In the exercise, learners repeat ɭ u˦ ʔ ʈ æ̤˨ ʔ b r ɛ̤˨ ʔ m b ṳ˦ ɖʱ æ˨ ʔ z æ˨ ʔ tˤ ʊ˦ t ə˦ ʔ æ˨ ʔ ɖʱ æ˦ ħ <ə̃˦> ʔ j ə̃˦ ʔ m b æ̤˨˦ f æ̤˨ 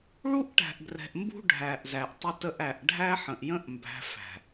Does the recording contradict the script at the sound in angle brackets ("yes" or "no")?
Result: yes